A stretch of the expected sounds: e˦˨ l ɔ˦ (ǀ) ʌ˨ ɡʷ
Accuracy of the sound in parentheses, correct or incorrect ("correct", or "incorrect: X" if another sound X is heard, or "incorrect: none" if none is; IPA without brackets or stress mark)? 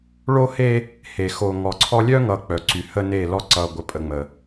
correct